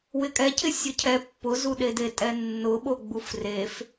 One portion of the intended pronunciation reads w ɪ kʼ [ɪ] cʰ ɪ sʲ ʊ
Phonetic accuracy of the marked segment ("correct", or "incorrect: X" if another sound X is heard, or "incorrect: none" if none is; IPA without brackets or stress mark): incorrect: ɛ